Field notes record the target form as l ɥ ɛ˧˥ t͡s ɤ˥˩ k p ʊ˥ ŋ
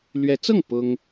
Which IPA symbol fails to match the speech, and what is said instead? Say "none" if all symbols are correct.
k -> ŋ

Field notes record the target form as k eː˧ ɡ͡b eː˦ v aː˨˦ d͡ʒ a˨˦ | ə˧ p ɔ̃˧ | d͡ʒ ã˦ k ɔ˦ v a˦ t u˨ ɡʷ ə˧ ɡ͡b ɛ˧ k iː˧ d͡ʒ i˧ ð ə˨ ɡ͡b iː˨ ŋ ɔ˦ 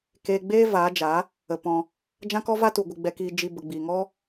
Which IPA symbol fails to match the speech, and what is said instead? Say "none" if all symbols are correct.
ð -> b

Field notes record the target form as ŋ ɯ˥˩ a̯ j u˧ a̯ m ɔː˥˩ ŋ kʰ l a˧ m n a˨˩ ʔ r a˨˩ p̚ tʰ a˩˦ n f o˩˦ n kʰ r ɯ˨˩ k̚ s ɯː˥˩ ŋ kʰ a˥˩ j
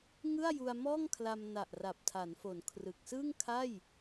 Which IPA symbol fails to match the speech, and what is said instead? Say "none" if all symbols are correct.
none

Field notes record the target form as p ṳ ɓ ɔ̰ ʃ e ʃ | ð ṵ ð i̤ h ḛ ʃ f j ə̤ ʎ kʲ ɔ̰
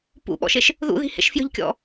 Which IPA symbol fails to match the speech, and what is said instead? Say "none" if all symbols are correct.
ṳ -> ṵ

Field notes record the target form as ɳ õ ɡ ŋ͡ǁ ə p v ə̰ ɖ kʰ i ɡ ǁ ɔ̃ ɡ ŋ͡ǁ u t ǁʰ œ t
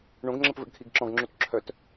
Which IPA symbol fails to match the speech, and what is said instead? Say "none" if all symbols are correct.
none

